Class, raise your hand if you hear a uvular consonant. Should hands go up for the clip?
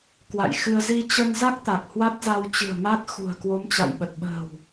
no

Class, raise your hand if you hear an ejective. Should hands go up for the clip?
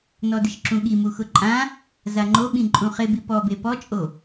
yes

